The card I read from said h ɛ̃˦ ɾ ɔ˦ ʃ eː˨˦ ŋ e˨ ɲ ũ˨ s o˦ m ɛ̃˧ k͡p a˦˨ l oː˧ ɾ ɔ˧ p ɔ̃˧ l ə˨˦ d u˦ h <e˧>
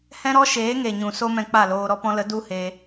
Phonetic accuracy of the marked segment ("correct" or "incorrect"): correct